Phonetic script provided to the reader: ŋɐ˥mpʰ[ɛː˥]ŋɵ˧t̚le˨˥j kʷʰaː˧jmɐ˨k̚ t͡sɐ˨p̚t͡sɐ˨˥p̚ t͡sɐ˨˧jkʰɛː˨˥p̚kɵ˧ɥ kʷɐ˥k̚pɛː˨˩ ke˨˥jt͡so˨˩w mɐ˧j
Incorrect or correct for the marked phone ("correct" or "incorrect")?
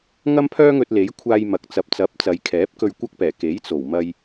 incorrect